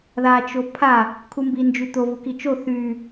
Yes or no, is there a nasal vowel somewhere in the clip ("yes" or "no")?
no